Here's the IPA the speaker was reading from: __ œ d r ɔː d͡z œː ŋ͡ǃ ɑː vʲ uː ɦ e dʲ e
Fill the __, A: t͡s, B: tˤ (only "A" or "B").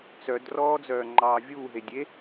A